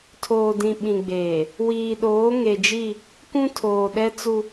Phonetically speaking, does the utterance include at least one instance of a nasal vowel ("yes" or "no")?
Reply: yes